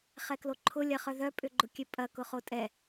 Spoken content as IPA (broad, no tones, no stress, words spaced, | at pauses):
χɛkloǃʰʊ lʲɐχœðœ pʼʏɡ͡ǃʊkʲøpʼɐ kʊχotʼɛ